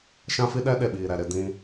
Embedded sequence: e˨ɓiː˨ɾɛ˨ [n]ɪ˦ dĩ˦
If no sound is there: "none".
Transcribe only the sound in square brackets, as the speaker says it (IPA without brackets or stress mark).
ɾ